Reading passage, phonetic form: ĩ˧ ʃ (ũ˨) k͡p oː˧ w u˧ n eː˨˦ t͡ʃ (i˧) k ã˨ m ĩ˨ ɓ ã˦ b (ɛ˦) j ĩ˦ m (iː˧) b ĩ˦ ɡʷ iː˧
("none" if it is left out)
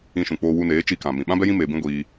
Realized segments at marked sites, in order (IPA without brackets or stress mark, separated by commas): ũ˨, i˧, ɛ˦, eː˧